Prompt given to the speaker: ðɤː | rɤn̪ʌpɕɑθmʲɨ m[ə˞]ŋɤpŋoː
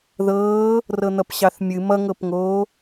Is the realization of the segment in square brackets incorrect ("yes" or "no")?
yes